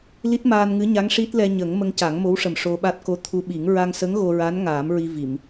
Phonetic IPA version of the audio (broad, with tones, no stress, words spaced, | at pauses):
li˦˥t̚maː˧nŋɨ˧˥ɲa˧˥ŋ ʂi˦˥t̚ lɛ˧ɲə˨˩˦ŋ mə˧ŋca˨˩˦ŋmo˧˥wʂə˨˩m ʂo˧ɓa˦˥t̚ ko˧˥t̪ʰu˧ɓi˨˩˦ŋ ɹa˧ŋsə˧˥ŋ ɣo˧ɹa˧˥n ŋaː˨˩˦mɹi˧vi˨˩˨m